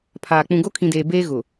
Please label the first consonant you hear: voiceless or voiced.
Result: voiceless